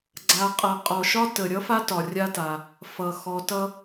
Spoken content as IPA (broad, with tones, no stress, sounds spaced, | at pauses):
ɡ͡ǀ a˨ qʼ ʌ˨ qʼ ɔ˩ ʃ ɒ˥ t ə˩ ɾʲ ʌ˥ f a˥ t ɒ˩ rʲ a˦ t a˩ | f ʌ˩ x ɔ˨ t ʌ˦